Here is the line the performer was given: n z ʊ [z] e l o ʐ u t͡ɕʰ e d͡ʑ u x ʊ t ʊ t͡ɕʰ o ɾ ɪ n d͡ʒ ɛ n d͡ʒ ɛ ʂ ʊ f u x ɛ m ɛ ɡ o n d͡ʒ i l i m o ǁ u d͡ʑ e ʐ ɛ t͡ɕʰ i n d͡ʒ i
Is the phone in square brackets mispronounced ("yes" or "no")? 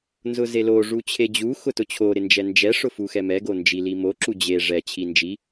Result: no